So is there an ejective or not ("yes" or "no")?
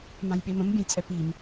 yes